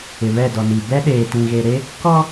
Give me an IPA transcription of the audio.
ɪ˨ β ɛ˦˨ d ɔ˨ n i˨ b ɛ˦ ɗ eː˨ t ĩ˨ ɣ e˨ ɾ e˦ | k ɔ˦

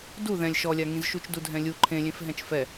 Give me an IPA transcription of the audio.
d u ð ɛ̃ lʲ ʃ ɔ lʲ a ŋ ĩ z ʃ u t͡ʃ d u dʱ ɛ̃ lʲ u ǃʰ ẽ lʲ ẽ f ɦ ɛ̃ t͡ʃ f ɛ

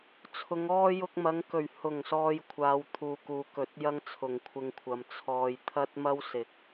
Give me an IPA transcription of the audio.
t͡sʰ ʊ˨˧ ŋ ɔː˥ j ʊ˧ k̚ m ɐ˨˧ ŋ k ɵ˨˩ ɥ h ʊ˨˩ ŋ s ɔː˨ j kʷʰ aː˨˧ w t̪ʰ uː˨ k uː˨ k ɵ˨˥ t̚ j ɐ˥ ŋ t͡sʰ ʊ˨˩ ŋ kʷʰ ɪ˧ ŋ kʷʰ ɐ˨ m t͡sʰ ɔː˨ j t̪ʰ ɐ˥ t̚ m ɐ˥ w s ɪ˨˥ k̚

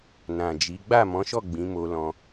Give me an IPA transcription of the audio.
n ã˨ d͡ʒ i˨˦ ɡ͡b a˦˨ m ɔ̃˨˦ ʃ ɔ˦˨ ɡ͡b ĩ˨˦ m o˧ l ɔ̃˧

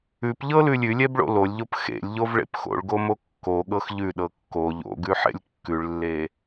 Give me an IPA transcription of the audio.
ʉ p ʎ ɤ l ʉ lʲ ʉ lʲ ɛ b ɭ o̰ l o lʲ ʎ o p x ḛ lʲ ʎ o v ɭ ḛ p x o̰ ɭ ɡ o m o kː o ɠ ɤ x ʎ ʉ ɗ ɤ kː o ʎ o̰ ɡ ʉ ħ ḛ lʲ kː ʉ ɭ lː e

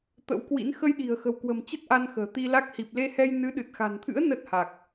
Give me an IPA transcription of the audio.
t̪ ə̰˧˥ w k w ḭ˧˥ n x ə˧ j ɗ i̤˨˩ ə̯ x ə̤˨˩ w k w ə̤˨˩ m t͡ɕ ə˦˥ t̚ ʔ a˧ n x ə̤ː˨˩ t̪ i˧ l a˦˥ k̚ h i˨˩ p̚ l e˧ h ɛ˧ j n ɨ˨˦ ɗ ɨ˨˩ t̚ x a̤˨˩ n t̪ʰ ɨ̰˧˥ ə̯ n ə˦˥ t̚ h a˨˩ k̚

